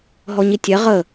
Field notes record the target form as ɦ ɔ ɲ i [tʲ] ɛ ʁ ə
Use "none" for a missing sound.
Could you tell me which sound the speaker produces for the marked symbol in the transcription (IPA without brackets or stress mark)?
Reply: tʲ